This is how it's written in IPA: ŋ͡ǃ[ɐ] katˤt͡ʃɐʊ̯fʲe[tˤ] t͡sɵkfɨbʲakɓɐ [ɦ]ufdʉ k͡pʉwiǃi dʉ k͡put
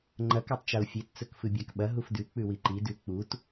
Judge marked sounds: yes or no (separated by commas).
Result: yes, no, yes